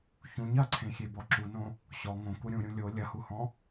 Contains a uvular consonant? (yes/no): no